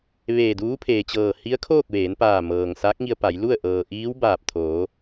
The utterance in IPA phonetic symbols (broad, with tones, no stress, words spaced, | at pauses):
ʋeː˧˩duː˧˥pʰeː˩t͡ɕɤː˧˩ hi˧˥ə̯kʰoː˥˨k̚ ʋeː˩˧npaː˧˩mɤː˩ŋ saː˧˥k̚ŋi˧ə̯pa˩˧j lu˥˨ə̯ ʔɤː˩ʔiː˧˥w baː˧˩p̚ t̪ʰoː˩˧